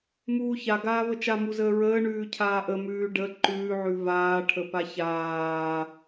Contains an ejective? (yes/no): no